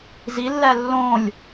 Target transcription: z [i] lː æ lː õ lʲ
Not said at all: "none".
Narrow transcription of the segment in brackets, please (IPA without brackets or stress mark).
i